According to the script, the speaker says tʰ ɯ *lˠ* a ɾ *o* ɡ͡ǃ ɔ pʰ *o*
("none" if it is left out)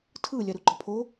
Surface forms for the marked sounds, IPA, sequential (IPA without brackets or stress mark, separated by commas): lʲ, u, o